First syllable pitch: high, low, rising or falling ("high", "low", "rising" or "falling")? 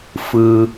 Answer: high